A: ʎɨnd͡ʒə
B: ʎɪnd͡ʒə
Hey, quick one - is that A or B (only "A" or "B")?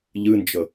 A